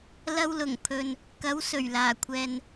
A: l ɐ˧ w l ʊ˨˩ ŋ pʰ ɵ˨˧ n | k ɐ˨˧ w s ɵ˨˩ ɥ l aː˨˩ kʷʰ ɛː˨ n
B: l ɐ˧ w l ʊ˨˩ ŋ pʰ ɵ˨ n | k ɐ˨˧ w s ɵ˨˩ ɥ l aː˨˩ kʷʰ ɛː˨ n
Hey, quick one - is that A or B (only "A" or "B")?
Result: B